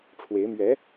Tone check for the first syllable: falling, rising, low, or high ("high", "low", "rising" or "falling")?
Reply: rising